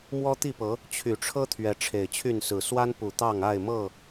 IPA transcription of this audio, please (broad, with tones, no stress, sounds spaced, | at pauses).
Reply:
m w ɔ˦ t̪ i˥˨ p ɤ˨˦ | t͡ɕʰ y˨˩ ʈ͡ʂʰ ɤ˦ t̪ʰ ɥ ɛ˨˦ ʈ͡ʂʰ e˨˩ ɪ̯ t͡ɕʰ y˥˨ n s ɹ̩˨˩ s w a˦ n p u˨˩ t̪ ɑ˥˨ ŋ a˥˨ ɪ̯ m ɤ˥˨